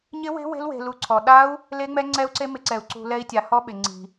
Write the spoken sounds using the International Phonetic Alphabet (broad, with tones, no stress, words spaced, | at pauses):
ɲɪ˦˥we̤˦˥we̤˦˥l we̤˧lu˧ ǀʰɔ˧ ɗa˦˥u̯ | le˦˥ŋ͡mɛ˦˥ŋ͡ǀɛ˦˥u̯ǀe˦˥ mɪ˦˥ǀɛ˧u̯ ǀṳ˧ lɛ˦˥i̯tʲa˧ hɔ˦˥ɓɪ˧ ŋ͡ǀi̤˧